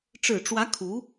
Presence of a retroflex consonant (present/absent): present